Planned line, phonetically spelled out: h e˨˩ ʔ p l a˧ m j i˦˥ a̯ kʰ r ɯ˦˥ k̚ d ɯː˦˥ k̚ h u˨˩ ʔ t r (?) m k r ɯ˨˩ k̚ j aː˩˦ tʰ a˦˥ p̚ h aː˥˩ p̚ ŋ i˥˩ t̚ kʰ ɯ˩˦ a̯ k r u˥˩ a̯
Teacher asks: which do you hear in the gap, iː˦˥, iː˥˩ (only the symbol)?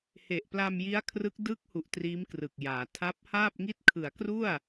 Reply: iː˦˥